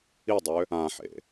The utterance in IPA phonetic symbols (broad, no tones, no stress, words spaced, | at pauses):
idˤø | ãħḛ